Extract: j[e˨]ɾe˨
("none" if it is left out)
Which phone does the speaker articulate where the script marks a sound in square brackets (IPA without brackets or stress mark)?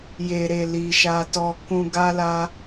e˨